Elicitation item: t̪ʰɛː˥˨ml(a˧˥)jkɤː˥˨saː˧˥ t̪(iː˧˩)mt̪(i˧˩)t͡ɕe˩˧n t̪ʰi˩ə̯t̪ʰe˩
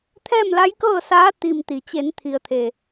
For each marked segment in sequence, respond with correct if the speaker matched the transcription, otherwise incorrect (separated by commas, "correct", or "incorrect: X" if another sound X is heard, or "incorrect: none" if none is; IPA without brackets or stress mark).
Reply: correct, incorrect: i˧˩, incorrect: i˩